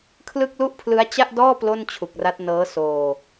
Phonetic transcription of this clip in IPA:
kʰ l ɯ˥˩ k̚ l u˥˩ ʔ pʰ l ɯ˦˥ a̯ t͡ɕ a˥˩ ʔ d ɔː˥˩ p l o˥˩ n t͡ɕʰ u˨˩ k̚ r a˦˥ t̚ n ɤː˦˥ s oː˧

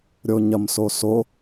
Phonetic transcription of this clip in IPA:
ɾʲ o ɲ ɐ m s o s o

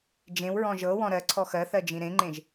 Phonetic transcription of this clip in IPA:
d͡ʒ ẽ w ɹ ɔ̃ ʒ ɤ w ɔ̃ ɾ ɜ ǀʰ ɔ x ɜ θ ɜ d͡ʒ ĩ ɾ ẽ ŋ͡ǃ ẽ ʒ

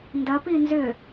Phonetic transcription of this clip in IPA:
n d ɐ p i n z ʏ

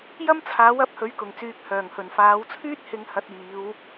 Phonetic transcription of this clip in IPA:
j ɐ˥ m t͡sʰ aː˨˥ w ɐ˨˥ p̚ h ɵ˨˥ ɥ k ʊ˨˩ ŋ t͡s yː˨ k̚ h œː˨˩ ŋ h ɵ˨˩ n f aː˨˧ w t͡sʰ yː˥ t̚ h ɪ˧ ŋ h ɐ˨˥ t̚ iː˨˧ w

